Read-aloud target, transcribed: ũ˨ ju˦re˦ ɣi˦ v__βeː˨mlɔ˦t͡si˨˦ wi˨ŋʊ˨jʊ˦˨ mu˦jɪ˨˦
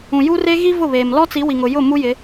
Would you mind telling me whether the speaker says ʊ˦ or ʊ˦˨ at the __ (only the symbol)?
ʊ˦˨